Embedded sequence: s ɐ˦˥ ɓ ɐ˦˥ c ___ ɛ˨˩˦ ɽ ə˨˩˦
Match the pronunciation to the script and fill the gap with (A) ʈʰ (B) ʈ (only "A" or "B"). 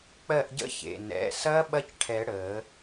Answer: A